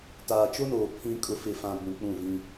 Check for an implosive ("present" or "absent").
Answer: absent